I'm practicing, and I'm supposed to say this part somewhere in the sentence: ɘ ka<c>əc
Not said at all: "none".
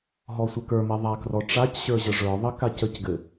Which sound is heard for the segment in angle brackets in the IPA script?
c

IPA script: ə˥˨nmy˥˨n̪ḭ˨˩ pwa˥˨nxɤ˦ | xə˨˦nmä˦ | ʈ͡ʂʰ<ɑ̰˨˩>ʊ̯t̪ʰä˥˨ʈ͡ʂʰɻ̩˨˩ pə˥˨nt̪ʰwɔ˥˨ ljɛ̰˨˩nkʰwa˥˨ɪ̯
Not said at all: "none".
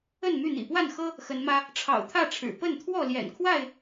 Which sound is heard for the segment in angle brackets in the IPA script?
ɑ̰˨˩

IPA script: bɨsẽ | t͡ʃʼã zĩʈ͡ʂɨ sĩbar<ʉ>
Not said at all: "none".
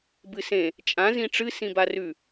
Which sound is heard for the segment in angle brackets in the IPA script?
ʉ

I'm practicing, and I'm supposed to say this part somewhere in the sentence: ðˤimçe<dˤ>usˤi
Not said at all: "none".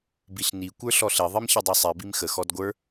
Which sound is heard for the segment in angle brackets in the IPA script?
dˤ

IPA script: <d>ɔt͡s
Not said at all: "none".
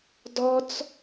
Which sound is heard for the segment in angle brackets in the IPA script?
d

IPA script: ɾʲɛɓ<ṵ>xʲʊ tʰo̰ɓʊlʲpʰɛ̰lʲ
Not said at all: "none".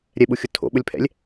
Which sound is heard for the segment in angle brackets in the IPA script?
u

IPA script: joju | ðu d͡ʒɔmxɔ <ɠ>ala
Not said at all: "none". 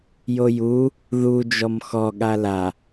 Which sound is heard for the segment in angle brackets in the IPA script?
ɠ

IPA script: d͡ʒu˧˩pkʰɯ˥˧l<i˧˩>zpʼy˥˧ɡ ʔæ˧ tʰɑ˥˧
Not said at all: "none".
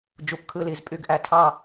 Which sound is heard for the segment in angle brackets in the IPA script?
i˧˩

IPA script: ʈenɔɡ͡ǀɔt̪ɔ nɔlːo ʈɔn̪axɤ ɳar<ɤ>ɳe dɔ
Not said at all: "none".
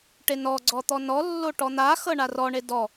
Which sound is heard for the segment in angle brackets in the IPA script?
ɔ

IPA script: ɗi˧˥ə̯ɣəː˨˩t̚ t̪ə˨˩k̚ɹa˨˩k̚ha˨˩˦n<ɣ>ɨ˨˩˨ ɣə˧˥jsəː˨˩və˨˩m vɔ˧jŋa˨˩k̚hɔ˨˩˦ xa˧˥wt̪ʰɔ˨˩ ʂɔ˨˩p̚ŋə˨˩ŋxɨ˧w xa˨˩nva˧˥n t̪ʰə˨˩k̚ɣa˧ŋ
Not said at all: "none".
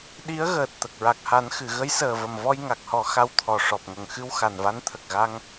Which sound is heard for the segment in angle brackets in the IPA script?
x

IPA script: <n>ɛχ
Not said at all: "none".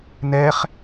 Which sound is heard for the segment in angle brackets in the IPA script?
n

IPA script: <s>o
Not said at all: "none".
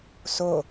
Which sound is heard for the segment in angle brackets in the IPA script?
s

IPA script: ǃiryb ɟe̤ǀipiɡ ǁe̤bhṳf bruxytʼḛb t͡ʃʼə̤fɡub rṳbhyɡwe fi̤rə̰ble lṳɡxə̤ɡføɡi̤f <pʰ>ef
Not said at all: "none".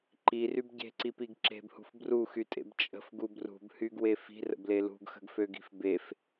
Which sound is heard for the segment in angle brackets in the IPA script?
b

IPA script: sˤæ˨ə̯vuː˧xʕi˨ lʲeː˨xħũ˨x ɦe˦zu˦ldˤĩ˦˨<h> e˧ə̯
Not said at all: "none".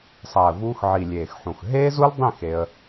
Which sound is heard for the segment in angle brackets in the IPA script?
x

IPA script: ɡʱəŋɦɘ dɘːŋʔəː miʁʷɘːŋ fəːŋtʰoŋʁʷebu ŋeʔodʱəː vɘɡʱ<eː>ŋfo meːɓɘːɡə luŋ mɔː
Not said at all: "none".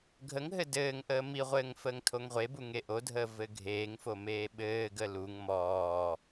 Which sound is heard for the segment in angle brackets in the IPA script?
eː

